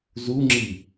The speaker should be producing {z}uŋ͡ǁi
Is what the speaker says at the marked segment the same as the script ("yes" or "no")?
yes